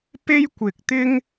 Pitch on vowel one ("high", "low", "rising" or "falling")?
high